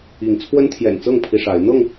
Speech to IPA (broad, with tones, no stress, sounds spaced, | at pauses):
i˨˦ ŋ t͡sʰ w ə˦ n t̪ʰ j ɛ̰˨˩ n t͡s ɤ˥˨ ŋ pʰ i˦ ʂ a˨˦ ɪ̯ n̪ ɤ˥˨ ŋ